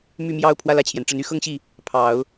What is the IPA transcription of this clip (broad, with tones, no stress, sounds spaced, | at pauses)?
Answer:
m y˥˧ m j ɑ˥˧ ʊ̯ pʰ w ä˥˧ l ä˥˩ t͡ɕʰ j ɛ˩ n ʈ͡ʂ ə˧˥ n y˥˧ x ɤ˥˧ ŋ ɕ i˥˩ | pʰ ɑ˨˩˦ ʊ̯